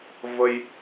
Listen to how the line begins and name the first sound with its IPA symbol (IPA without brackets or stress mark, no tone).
v